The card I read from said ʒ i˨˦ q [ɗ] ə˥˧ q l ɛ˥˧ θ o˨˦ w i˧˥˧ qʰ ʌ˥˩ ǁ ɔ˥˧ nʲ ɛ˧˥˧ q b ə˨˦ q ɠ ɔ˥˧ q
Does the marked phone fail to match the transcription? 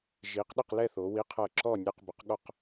no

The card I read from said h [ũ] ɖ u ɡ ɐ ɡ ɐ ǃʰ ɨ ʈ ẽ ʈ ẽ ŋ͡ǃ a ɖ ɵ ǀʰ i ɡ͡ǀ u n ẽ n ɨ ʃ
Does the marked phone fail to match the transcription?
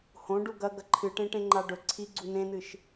yes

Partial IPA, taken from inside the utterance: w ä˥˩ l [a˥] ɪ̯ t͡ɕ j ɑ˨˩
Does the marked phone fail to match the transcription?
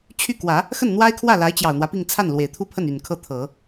yes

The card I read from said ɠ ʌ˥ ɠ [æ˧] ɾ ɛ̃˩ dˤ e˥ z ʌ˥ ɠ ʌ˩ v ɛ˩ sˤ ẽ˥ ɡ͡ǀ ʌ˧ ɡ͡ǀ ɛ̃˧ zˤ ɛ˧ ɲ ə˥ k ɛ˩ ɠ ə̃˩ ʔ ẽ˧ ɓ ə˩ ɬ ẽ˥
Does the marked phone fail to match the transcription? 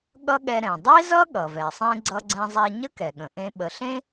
yes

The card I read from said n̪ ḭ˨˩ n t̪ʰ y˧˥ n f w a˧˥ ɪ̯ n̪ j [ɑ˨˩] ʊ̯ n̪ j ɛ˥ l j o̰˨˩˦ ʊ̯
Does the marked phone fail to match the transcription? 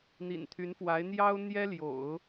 yes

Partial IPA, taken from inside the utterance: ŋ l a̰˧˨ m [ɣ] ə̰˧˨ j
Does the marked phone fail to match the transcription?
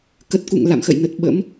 yes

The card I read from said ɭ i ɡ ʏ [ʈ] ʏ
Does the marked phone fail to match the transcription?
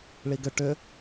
no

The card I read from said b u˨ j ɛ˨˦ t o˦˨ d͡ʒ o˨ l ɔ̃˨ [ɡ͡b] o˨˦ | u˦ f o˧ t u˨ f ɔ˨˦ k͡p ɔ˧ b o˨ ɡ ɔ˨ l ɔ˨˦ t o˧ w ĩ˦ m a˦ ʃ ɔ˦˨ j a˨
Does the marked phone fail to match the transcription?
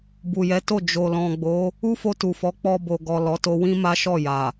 no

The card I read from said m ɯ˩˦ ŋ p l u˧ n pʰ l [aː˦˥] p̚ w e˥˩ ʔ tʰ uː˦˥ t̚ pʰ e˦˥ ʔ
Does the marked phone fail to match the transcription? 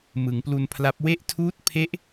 yes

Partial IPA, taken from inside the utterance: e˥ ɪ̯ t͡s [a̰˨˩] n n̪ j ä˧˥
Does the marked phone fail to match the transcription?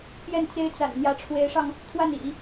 no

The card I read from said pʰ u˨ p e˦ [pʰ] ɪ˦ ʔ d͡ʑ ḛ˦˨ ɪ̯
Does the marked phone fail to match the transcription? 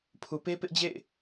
yes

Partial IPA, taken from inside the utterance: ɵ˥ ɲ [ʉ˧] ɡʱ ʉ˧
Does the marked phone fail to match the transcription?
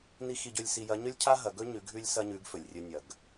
yes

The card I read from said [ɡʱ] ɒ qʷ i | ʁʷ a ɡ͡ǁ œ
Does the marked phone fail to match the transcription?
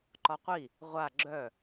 yes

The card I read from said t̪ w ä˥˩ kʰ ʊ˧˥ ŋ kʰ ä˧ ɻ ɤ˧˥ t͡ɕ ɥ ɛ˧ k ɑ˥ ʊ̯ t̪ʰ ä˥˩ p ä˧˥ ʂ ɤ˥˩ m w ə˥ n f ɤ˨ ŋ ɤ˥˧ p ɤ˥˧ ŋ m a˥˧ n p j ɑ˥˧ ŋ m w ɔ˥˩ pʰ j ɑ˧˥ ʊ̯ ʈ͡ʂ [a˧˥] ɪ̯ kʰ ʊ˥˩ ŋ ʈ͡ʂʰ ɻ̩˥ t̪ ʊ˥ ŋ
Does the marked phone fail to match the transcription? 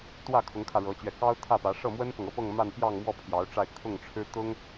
yes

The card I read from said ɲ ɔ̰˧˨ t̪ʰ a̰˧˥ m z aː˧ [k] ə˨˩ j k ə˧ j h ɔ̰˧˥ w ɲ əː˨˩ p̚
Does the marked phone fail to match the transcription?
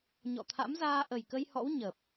yes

